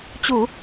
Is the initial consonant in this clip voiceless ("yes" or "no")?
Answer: yes